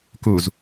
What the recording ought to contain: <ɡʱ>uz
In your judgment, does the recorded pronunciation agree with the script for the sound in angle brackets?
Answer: no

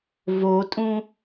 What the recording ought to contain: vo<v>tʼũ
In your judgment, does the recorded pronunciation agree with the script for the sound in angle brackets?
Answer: no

